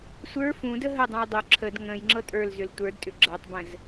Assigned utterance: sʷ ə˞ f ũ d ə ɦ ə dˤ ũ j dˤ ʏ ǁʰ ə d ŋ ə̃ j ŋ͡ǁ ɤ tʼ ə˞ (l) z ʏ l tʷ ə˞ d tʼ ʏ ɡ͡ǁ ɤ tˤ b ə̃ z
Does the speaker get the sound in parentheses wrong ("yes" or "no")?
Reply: no